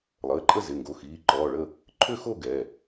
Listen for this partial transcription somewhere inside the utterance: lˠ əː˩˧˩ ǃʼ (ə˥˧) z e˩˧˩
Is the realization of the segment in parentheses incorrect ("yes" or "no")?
no